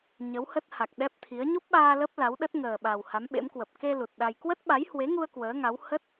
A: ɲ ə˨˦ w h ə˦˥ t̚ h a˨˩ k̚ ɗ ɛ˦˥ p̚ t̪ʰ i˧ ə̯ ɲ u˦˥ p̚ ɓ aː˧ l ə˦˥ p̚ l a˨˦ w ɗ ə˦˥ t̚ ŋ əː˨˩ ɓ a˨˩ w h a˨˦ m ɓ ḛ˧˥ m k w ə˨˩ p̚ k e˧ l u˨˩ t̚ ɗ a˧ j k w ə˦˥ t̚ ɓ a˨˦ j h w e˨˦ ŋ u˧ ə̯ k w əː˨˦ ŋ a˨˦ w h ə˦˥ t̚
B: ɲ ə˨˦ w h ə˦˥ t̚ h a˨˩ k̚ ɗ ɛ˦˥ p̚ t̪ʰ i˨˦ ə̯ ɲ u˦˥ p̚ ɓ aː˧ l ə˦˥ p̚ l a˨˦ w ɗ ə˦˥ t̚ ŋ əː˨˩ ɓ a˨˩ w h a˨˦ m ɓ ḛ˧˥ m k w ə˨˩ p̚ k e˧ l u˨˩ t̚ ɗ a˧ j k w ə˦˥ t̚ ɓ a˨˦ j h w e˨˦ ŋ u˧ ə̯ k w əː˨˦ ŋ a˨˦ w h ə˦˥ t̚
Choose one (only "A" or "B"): B